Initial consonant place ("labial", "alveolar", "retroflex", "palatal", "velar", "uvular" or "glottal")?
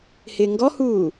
glottal